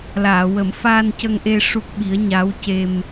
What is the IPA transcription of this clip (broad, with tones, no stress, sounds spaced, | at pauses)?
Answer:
l aː˨˩˨ w ə˨˩˦ m f aː˧ n c ə˧ ŋ ʔ e˧ ʂ u˦˥ k̚ ɓ i˧˥ ə̯ ɲ a˧˥ w c e˧ m